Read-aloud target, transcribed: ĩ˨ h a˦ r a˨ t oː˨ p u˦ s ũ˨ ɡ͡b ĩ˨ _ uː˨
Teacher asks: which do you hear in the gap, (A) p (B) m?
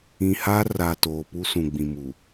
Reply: B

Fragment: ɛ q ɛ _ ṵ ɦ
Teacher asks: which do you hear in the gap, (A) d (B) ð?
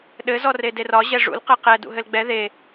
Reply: A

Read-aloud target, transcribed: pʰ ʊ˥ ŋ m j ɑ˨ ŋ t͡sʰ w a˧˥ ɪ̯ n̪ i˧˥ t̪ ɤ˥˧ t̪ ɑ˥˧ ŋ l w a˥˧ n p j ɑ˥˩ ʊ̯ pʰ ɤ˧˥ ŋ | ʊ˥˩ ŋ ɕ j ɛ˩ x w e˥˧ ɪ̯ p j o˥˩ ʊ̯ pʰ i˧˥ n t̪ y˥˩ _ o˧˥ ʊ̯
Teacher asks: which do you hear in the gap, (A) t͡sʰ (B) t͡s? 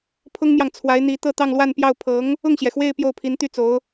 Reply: B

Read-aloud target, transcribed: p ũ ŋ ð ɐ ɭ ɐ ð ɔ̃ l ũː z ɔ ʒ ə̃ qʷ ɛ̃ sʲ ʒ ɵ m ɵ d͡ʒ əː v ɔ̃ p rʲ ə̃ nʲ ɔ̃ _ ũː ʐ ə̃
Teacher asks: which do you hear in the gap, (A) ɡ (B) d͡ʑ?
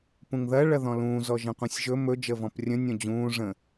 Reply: B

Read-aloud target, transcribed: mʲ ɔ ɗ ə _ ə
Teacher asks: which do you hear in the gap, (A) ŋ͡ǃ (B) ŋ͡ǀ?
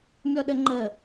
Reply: A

